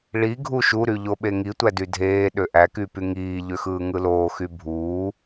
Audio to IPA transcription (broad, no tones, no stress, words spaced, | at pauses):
ɭi ɡʱuʃuɾy ʎoɓeŋi tʷædydʱeː ɗøʔæky pyŋiːʎøxɯː ŋɯloːxy bʱuː